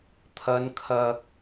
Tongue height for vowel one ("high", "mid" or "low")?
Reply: low